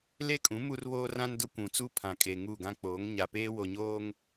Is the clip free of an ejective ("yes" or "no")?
no